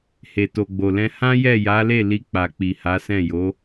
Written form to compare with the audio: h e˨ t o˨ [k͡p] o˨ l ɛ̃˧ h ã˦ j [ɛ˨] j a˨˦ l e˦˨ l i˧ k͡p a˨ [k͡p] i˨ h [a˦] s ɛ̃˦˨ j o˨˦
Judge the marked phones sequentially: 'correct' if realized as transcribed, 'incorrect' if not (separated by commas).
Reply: incorrect, incorrect, correct, incorrect